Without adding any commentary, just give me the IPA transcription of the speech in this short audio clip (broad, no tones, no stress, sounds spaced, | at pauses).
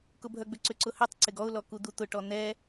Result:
k ʊ bʱ œ ɡ͡b ʏ ǀ ʏ ǀ ʊ h ʏ tˤ ǀ ɪ ɡ ɔ ʊ̯ l ɔ k u d̪ u t̪ ʊ ʈ ɔ n̪ ɛ